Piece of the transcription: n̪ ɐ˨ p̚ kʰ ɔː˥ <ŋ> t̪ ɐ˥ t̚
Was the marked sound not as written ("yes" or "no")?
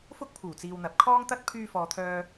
no